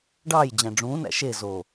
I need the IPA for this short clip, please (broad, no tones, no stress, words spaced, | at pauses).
ɖɑːjd͡ʑæ̃ ɖ͡ʐũːnæ̰ ʃe zo